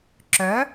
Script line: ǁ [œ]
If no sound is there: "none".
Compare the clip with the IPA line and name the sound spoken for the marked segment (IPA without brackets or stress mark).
œ